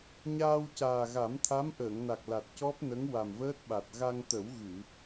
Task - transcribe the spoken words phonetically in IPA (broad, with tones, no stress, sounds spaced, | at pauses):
ɲ aː˧ w c aː˨˩ ɣ a˨˩˦ m t̪ʰ a˧˥ m ʔ əː˨˩˨ ŋ n a˨˩ k̚ l a˨˩ t̚ c ɔ˦˥ p̚ n ə˧˥ ŋ w a˨˩ m v əː˦˥ t̚ ɓ a˨˩ t̚ ɣ a˧ ŋ t̪ ə˨˩˦ w ɣ ɨ˨˩˨